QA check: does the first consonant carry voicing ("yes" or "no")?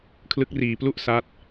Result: no